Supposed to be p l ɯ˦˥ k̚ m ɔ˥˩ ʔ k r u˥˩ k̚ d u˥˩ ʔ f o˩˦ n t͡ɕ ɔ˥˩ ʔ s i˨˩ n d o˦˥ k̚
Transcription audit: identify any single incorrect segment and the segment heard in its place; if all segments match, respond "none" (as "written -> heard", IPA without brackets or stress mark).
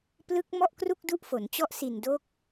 none